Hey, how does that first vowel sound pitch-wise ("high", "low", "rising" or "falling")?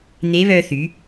rising